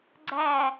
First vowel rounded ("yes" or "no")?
no